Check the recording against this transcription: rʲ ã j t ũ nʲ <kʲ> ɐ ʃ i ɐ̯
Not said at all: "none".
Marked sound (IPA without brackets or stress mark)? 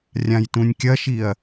kʲ